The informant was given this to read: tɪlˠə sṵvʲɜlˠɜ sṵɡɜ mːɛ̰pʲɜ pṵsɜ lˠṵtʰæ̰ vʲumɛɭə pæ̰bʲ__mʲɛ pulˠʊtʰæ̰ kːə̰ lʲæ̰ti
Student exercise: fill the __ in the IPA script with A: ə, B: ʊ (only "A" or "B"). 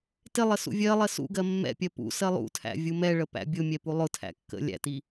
B